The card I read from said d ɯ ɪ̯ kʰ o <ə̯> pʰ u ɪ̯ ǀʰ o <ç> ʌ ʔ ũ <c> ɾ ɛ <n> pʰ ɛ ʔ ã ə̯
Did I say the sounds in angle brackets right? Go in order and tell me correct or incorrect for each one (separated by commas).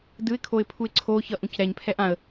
incorrect, correct, correct, incorrect